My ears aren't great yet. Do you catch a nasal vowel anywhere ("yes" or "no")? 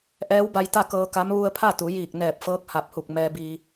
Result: no